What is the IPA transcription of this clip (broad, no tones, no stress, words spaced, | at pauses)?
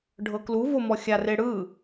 ɖʱɤklu vomɔxʲa reɽɯ